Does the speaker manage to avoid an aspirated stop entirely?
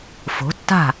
yes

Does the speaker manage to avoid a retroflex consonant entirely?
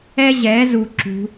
yes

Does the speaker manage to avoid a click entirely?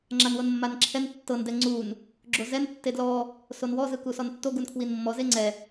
no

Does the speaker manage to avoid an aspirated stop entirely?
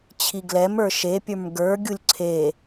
no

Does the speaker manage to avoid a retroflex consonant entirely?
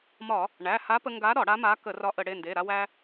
no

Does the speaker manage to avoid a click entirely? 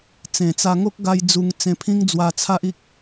yes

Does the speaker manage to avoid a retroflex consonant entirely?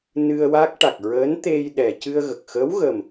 no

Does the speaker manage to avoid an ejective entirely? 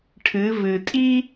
no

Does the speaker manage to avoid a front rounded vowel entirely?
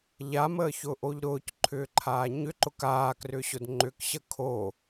no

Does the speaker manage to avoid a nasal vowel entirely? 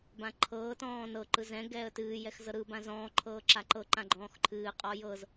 no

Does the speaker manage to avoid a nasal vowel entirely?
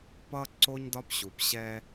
yes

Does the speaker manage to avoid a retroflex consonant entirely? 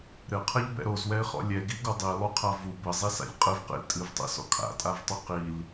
yes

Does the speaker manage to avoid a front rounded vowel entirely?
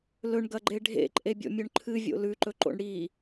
yes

